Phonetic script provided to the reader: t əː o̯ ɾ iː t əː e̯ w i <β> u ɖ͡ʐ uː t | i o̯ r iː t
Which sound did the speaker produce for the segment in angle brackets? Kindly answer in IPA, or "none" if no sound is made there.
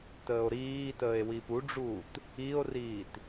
p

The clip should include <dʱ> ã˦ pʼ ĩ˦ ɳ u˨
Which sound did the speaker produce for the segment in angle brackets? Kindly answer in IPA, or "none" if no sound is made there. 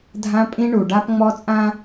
dʱ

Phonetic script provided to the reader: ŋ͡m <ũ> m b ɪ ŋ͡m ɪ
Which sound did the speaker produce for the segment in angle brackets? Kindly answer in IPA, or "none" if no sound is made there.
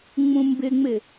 ũ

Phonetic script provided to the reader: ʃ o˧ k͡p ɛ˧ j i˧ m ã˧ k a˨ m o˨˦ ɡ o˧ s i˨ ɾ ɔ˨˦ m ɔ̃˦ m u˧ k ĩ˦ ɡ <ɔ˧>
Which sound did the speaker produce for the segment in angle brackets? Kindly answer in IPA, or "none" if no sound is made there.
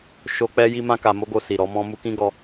ɔ˧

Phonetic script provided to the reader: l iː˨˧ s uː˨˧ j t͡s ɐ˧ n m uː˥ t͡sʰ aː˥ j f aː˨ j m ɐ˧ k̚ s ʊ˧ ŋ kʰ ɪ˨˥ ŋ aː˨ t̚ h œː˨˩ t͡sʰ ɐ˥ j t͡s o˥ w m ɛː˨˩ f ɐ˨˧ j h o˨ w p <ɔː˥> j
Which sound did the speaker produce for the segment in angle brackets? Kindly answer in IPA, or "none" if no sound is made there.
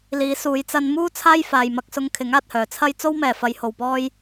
ɔː˥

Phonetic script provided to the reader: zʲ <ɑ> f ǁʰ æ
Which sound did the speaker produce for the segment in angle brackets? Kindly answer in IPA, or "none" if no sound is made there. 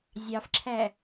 ɑ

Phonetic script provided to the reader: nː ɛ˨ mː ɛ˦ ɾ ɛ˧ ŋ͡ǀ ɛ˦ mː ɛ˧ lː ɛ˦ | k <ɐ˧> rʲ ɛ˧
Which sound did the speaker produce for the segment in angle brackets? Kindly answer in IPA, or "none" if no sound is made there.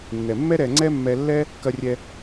ɐ˧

